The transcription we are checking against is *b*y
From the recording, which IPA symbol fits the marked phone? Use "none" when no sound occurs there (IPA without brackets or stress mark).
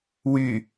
w